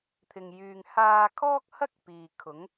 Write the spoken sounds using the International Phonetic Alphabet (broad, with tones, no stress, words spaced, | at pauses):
t̪ʰɪ˨ŋjyː˨ŋ haː˧kʰɔː˥k̚hɐ˥k̚ piː˨kʰʊ˨˥ŋ